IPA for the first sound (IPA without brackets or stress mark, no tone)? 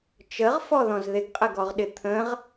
t͡ʃ